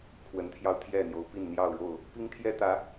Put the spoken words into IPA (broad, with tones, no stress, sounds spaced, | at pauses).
kʰ w ə˨˦ n t̪ʰ j ɑ˧ ʊ̯ t̪ʰ j ɛ˥˨ n̪ j o˨˦ ʊ̯ p i˥˨ n n̪ j ɑ˥˨ ʊ̯ ɻ o˥˨ ʊ̯ | p i˦ ŋ t̪ʰ j ɛ˦ t̪ ä˨˦